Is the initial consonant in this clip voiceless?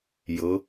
no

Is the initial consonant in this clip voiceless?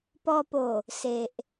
yes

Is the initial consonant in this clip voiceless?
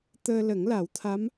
yes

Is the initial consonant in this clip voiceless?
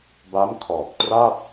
no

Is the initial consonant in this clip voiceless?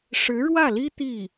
yes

